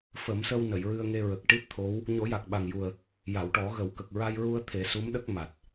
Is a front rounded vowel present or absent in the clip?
absent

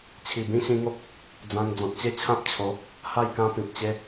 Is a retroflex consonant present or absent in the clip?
absent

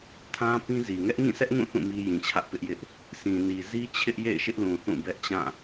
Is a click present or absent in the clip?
absent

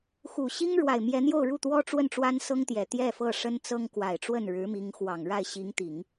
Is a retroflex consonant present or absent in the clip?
present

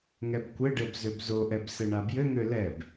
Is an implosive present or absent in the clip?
absent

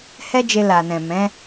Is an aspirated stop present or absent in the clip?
absent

